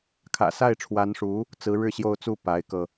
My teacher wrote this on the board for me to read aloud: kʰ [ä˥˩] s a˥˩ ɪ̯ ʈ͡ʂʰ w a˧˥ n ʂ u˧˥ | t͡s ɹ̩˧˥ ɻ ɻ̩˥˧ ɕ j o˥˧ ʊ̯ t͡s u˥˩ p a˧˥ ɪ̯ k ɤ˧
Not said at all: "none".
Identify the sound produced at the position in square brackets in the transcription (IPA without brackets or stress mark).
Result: ä̰˨˩